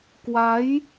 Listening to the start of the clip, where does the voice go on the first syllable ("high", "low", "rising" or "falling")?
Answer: rising